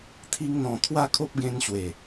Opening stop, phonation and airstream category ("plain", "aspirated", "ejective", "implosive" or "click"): aspirated